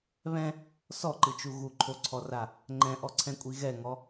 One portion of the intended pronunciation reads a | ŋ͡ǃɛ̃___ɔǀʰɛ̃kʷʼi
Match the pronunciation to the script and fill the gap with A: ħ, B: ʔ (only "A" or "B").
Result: B